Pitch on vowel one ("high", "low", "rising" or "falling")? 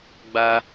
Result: high